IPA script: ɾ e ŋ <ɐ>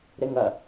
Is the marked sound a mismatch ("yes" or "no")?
no